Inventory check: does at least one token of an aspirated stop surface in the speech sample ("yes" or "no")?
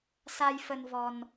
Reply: no